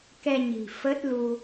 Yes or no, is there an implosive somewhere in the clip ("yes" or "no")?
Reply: no